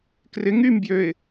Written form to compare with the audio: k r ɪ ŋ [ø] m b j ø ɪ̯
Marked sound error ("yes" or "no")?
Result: yes